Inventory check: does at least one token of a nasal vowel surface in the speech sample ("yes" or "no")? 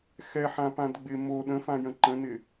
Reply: yes